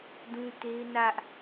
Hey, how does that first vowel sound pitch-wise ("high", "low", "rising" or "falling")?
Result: high